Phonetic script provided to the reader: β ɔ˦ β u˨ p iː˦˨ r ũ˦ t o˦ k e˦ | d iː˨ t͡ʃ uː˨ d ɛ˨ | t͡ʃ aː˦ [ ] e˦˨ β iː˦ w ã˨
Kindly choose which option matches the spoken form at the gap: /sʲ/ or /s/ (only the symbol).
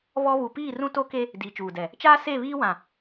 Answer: s